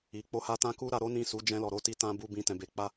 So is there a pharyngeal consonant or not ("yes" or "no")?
no